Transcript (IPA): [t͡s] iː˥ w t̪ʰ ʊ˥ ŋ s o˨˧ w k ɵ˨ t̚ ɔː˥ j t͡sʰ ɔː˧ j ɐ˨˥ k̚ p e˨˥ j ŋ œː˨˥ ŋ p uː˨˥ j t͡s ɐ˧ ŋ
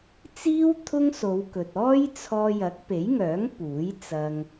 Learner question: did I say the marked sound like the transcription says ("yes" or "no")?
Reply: yes